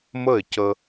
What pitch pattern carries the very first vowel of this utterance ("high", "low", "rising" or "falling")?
falling